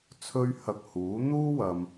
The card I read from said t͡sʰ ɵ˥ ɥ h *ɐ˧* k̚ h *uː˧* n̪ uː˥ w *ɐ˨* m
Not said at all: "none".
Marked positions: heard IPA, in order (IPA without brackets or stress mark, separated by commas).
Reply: ɐ˧, uː˨˥, ɐ˨